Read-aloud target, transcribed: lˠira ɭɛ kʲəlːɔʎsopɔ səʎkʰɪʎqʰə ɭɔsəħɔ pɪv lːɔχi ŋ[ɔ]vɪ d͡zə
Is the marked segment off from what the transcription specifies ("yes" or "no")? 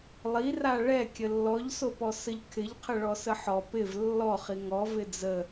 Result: no